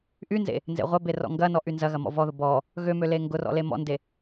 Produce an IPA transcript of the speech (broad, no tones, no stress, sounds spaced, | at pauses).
ʔ y n z ḛ | n z ḛ ʁʷ ɐ b e r ɔ̰ ŋ ɡ ɐ n ɔ ʔ y n z ɐ ɣ ɐ m ɔ̰ v ɔ ð ʊ b ɔ | ɣ ø m ø l e ŋ ɡ ʊ r ɔ̰ l e m ɔ̰ n d e